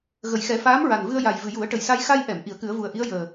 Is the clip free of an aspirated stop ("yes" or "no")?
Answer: yes